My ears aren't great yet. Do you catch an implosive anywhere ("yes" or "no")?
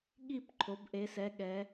yes